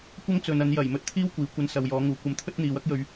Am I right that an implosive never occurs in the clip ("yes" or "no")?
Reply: yes